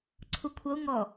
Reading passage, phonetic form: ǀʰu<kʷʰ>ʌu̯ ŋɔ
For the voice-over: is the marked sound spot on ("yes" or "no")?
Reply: yes